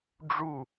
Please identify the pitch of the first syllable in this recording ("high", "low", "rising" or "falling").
falling